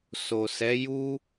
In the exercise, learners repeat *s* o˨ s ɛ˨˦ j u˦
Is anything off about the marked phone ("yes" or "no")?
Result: no